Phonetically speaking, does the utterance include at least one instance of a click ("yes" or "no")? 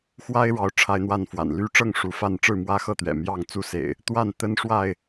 no